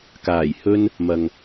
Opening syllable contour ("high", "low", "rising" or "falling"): low